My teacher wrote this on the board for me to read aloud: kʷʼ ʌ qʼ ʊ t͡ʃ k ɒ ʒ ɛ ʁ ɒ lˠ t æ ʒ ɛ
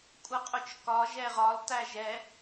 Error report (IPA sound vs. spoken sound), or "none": none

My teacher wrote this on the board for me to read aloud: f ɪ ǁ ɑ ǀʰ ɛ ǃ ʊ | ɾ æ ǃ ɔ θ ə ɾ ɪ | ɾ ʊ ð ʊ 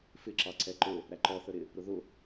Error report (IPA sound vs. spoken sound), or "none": none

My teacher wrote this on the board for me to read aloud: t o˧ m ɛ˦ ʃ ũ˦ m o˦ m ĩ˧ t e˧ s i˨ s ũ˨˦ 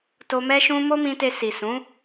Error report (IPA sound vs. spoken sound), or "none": none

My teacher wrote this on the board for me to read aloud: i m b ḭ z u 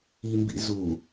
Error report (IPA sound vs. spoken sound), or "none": none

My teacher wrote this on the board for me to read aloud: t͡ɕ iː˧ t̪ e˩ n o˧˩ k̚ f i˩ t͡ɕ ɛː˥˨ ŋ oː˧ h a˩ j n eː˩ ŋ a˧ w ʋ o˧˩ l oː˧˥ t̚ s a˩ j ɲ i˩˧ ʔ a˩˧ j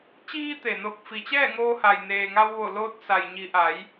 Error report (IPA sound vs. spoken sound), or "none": none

